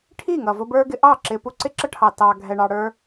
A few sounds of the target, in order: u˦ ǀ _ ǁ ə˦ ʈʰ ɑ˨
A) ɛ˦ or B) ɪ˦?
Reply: B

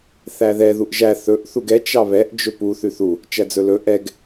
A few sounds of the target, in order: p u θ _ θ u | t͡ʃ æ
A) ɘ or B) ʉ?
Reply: B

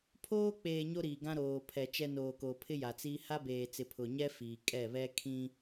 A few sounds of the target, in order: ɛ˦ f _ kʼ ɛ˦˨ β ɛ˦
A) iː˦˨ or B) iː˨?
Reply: B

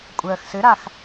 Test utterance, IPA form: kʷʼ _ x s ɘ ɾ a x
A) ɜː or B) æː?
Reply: A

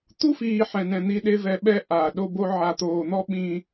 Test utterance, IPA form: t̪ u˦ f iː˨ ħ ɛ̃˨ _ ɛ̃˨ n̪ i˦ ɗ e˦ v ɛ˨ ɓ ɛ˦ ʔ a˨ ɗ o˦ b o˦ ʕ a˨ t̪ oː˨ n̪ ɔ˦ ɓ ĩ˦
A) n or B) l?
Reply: A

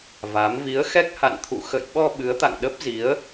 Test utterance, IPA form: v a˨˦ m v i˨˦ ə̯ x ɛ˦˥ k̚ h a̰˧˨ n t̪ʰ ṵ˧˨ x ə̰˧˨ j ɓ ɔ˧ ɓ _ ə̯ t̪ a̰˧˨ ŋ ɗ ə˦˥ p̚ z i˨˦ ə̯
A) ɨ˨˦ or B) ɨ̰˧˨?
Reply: A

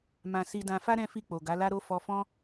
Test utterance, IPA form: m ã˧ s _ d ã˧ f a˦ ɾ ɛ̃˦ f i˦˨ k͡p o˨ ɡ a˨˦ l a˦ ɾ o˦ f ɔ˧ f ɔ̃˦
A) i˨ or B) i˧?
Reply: B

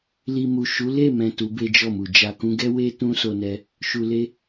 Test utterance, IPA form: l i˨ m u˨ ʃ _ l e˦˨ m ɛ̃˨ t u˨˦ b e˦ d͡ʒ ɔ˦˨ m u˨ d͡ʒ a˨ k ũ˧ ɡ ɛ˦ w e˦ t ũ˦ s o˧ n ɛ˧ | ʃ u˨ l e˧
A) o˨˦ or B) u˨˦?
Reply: B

